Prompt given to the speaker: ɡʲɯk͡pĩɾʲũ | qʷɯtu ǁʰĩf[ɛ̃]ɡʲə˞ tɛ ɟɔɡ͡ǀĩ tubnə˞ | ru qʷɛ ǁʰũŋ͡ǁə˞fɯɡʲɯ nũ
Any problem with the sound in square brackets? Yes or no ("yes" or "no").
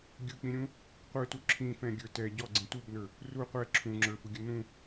no